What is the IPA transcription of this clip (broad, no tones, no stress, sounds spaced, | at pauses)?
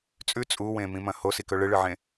t͡sʼ ʉ t͡sʼ u w ẽ m ĩ m ɐ̃ h o s i k ɵ ɭ ɨ ɭ ɨ ʕ ẽ